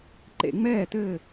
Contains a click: yes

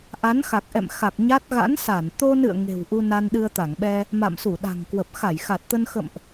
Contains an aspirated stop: no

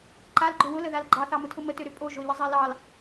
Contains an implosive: no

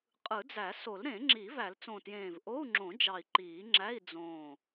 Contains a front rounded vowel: no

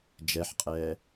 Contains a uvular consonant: yes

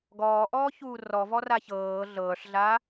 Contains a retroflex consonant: yes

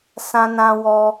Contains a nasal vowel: yes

